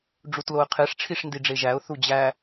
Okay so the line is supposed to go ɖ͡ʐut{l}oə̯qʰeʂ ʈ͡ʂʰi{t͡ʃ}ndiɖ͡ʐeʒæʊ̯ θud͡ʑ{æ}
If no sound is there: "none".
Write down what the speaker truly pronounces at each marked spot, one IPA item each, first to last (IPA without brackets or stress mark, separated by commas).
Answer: l, ʂ, æ